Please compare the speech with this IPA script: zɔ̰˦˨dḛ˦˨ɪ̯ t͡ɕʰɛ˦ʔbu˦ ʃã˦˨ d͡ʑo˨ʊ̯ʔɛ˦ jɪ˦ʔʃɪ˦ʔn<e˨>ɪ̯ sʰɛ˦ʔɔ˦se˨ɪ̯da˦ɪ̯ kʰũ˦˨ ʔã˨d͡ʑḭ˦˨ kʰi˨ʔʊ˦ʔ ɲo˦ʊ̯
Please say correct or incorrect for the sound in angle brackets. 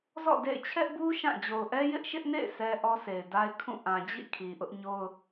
incorrect: ḛ˦˨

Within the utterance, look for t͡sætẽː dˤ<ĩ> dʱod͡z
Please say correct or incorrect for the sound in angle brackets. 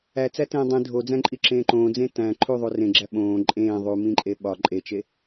correct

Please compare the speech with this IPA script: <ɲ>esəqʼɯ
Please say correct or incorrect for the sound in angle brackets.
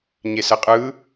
correct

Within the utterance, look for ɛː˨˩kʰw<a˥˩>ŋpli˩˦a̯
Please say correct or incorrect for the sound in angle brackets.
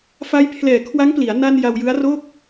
incorrect: a˦˥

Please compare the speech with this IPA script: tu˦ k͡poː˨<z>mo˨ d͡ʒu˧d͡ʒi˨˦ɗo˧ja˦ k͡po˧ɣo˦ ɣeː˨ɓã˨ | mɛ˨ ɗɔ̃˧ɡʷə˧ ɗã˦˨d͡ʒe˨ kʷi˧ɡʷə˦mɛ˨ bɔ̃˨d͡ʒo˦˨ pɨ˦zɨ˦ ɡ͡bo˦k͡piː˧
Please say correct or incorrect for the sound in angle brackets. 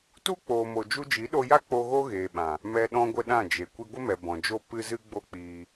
incorrect: none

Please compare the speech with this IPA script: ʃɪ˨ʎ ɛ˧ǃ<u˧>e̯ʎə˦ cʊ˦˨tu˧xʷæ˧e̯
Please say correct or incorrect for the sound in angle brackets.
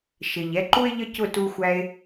incorrect: u˦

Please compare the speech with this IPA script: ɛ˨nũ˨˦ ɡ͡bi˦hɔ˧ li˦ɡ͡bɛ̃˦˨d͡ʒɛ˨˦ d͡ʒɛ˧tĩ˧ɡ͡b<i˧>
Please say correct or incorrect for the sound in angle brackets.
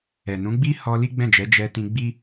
incorrect: i˦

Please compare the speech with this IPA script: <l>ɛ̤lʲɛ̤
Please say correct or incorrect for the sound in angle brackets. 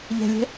incorrect: ʎ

